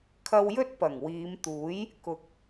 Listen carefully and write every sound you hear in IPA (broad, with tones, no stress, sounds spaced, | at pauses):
kʰ ɐ˧ w j ɵ˥ t̚ p ɐ˨˩ ŋ w iː˨˧ m t̪ uː˨˥ j | k ʊ˨ k̚